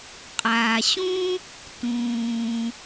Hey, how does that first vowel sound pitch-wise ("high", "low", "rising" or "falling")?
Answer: low